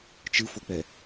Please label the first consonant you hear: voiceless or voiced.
voiceless